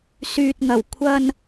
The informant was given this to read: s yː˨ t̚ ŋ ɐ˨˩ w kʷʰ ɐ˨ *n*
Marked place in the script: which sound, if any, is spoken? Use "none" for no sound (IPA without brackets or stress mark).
n